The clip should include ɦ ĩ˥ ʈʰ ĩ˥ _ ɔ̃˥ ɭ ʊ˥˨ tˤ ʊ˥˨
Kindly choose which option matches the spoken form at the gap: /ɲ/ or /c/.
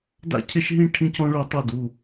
c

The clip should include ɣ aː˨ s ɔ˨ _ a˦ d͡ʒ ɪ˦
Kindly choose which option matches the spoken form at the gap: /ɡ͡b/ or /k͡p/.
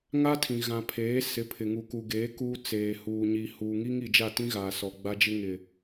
ɡ͡b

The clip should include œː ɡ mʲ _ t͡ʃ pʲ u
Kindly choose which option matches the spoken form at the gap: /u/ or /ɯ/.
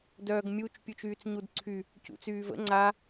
u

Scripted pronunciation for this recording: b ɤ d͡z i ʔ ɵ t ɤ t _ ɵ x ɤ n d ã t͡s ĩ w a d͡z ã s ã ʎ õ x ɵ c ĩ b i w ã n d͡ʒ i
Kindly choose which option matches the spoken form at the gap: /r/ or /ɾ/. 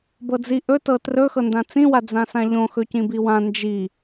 r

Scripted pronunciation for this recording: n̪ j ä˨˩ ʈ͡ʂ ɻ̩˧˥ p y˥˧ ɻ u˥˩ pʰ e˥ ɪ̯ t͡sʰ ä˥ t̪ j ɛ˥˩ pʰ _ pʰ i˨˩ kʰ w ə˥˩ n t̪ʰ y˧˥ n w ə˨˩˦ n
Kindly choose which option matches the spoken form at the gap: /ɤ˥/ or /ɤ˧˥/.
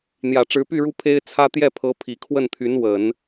ɤ˧˥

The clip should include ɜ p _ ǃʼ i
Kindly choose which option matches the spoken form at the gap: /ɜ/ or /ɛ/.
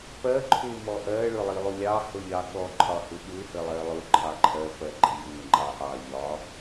ɜ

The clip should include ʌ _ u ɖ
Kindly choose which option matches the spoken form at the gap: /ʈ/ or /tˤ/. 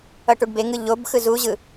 ʈ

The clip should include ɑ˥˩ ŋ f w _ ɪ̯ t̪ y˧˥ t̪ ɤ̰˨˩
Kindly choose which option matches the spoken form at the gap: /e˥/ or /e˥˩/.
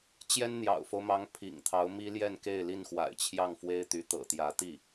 e˥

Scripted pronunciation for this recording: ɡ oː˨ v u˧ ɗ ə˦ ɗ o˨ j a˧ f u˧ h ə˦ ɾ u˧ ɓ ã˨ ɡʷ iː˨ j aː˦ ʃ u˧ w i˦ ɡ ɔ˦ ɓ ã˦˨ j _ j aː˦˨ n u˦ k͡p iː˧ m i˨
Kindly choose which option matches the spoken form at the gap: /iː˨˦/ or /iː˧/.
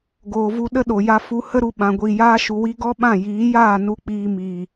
iː˨˦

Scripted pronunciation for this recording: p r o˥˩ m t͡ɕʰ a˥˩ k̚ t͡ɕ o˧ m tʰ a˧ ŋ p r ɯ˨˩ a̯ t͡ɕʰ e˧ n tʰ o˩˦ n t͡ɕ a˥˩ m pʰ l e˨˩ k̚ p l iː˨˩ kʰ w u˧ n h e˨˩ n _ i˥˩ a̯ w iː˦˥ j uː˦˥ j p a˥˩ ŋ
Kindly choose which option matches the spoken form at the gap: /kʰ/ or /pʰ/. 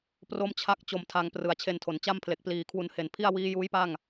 pʰ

